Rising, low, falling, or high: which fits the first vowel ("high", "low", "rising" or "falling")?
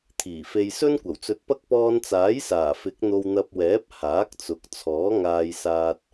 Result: low